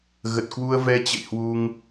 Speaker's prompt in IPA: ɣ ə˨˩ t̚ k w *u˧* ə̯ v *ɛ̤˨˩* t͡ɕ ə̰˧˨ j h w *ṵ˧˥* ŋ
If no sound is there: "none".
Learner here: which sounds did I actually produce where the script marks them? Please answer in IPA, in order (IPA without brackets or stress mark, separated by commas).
u˧, ɛ˧, u˧